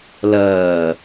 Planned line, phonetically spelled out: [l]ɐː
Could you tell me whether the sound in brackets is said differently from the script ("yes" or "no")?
no